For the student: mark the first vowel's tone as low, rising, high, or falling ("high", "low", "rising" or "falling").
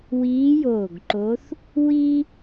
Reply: rising